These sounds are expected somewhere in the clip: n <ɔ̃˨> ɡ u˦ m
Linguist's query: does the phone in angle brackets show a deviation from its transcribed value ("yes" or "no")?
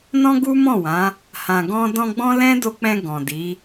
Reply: yes